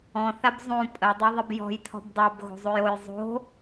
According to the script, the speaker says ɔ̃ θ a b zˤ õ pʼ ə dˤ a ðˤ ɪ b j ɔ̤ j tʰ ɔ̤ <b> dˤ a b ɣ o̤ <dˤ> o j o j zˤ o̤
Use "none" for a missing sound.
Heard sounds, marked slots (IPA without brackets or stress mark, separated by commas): b, zˤ